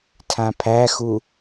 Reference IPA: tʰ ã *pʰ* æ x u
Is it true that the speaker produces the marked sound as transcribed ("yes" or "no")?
yes